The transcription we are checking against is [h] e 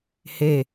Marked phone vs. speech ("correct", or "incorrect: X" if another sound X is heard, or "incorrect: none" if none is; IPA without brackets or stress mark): correct